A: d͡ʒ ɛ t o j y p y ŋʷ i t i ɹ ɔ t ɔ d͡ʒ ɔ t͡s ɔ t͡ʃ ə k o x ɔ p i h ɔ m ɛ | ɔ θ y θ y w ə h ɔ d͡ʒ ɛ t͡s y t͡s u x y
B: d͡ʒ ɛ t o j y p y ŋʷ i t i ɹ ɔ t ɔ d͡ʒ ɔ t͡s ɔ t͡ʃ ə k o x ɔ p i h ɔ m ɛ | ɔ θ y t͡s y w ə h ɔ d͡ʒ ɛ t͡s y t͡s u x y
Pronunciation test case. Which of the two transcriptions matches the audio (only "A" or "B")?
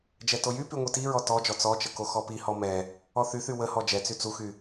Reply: A